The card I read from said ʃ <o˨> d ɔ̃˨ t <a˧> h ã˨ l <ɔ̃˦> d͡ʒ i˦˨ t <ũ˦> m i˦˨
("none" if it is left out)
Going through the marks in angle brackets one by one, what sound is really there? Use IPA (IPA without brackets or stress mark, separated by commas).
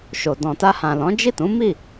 o˨, a˧, ɔ̃˨˦, ũ˨˦